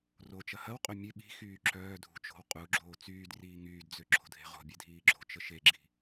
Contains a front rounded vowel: yes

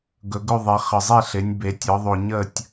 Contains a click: no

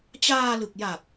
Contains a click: no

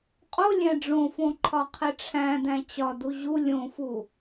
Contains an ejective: yes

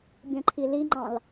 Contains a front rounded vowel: no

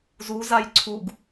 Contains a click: yes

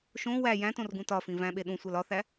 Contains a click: no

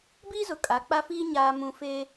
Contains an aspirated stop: no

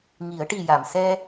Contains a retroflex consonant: yes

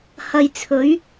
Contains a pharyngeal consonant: no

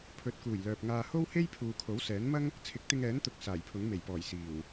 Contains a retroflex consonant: no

